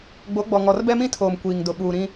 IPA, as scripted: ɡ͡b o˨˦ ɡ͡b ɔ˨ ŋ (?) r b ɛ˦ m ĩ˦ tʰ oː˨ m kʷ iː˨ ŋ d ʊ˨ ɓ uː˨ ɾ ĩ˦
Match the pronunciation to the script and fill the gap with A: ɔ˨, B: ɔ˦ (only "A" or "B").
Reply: A